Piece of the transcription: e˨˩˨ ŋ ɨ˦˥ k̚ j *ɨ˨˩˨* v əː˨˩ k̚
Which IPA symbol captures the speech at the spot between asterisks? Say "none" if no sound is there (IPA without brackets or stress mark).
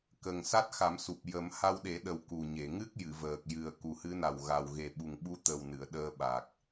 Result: ɨ˨˩˨